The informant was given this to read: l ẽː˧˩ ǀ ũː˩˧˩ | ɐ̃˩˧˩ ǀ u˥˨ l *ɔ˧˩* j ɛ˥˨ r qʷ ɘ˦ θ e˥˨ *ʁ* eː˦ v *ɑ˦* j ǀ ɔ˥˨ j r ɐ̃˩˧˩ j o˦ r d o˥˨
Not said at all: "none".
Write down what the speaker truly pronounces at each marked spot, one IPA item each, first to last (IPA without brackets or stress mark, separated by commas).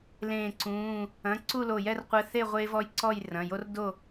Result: o˧˩, ʁʷ, ɔ˦